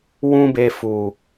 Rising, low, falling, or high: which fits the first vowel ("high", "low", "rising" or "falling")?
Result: high